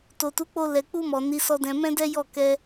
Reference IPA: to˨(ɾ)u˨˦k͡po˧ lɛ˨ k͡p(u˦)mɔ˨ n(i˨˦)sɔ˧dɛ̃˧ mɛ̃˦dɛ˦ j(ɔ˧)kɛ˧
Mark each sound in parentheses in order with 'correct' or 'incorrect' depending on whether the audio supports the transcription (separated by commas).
incorrect, incorrect, correct, incorrect